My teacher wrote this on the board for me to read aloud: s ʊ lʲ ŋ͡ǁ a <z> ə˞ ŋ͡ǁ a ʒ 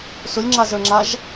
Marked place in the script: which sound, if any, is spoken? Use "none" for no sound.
z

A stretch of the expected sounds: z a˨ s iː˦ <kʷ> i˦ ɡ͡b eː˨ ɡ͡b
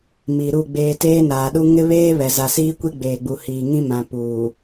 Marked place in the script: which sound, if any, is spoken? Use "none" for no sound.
kʷ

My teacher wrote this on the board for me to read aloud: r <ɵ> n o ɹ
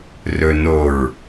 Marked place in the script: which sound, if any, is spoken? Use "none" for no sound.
ɵ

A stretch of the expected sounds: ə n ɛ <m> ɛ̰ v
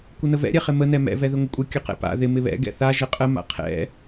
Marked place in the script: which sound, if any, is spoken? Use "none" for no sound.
m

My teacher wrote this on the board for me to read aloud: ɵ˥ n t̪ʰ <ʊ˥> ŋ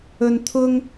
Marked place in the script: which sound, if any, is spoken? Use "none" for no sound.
ʊ˥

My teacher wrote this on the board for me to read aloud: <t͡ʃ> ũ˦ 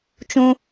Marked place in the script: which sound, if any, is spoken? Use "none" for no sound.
t͡ʃ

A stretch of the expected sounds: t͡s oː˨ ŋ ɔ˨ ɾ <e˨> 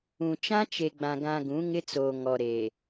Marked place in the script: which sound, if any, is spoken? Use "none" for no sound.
e˨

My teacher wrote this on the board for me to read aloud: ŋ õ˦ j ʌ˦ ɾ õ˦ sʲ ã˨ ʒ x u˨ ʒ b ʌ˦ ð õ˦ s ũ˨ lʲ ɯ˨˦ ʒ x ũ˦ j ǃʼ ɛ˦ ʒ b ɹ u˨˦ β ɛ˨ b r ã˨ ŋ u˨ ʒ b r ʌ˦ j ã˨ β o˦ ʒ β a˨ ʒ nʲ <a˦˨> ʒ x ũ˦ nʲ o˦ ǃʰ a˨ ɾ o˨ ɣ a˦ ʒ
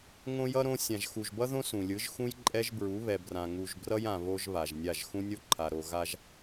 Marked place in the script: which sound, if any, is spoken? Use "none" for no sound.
a˦˨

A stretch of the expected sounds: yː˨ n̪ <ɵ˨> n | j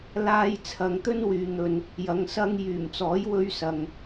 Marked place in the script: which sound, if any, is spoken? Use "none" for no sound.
ɵ˨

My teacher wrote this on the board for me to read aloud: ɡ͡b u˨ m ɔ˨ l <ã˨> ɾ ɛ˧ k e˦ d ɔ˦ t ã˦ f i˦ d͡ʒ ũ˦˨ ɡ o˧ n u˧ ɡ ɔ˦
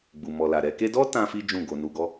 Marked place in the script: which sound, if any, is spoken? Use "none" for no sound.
a˨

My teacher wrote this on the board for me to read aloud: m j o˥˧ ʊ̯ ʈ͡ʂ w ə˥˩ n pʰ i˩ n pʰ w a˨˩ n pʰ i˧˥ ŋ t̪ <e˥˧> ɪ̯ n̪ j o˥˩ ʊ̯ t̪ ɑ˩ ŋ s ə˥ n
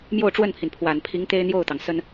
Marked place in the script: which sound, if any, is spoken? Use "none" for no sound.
e˥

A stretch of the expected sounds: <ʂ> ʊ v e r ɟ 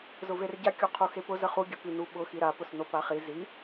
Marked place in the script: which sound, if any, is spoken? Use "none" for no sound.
z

